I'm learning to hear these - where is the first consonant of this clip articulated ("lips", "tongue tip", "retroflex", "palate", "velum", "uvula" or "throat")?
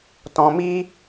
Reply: tongue tip